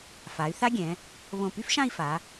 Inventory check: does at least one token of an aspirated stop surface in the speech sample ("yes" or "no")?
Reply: no